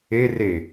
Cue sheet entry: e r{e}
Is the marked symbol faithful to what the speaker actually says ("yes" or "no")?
yes